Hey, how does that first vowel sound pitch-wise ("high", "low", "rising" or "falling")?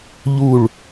falling